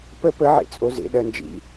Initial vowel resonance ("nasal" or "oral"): oral